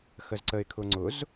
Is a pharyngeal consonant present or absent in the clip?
absent